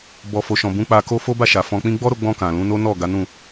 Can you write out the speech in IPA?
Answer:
bɔ˨fo˨ʃɔ̃˨ bũ˨˦k͡pa˧ko˦ fo˦ba˦˨ʃa˨ fɔ̃˧k͡pĩ˦ ɡ͡bɔ˦ɾo˧ɡ͡bɔ̃˧ kã˨lũ˨˦ no˦nɔ˦˨ ɡa˨˦nũ˦˨

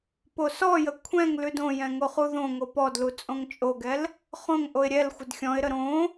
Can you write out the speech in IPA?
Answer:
posɔjə kʷʰɛ̃ŋ lʉdõjɛ̃ ŋoχuðõŋo pɔdlu t͡sʼõŋt͡ʃʼoɡɛl | χõŋʔoɪ̯ ɾʲɛl xʷədxʲɔ̃ɪ̯ɾə ɾõ

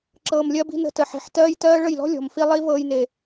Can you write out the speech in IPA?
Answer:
ǁɤː˧mlʲɜ˦bi̤˦ nə̤˧tə˨ ħi̤˨ħtɜː˦jtɜː˦ ɭə˦˨jlɔ̤˦lʲɔ̤˨mfi˧ lˠi˦vɤː˧jne˨

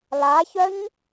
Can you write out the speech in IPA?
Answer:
laçœɲ

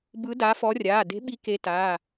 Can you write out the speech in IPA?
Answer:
bɯ˨˦da˨˦fɔ˨˦rʲaː˩˧˩ de̤˨˦ɓi˨˦ ke˨˦taː˩˧˩

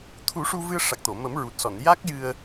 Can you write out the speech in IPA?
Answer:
t̪ʰu˨˩˦ʂu˧vɨ˧ə̯ ʂa˨˩k̚t̪o˨˩˨ mə˨˩˦mɹu˨˩t̚sɔ˨˩˨n ja˦˥k̚jɨ˧ə̯

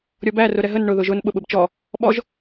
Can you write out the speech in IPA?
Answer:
ɾʲɔbæ rʊɾɛɦən ɳʊ ðʊʒʊn ɓʊɓʊbt͡ʃɔ | ɓɔʒ

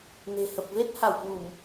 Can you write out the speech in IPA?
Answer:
ne̤˨˩hə˨˩p̚ ve˦˥t̚ha˧˩w kwu˧˩˨m

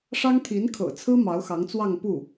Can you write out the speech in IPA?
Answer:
ʂɑ˥ŋt̪ʰi˧˥nkʰɤ̰˨˩t͡sʰɹ̩˥ mɑ˧˥ʊ̯xɑ˧˥ŋt͡swɑ˥˧ŋ pu˥˩

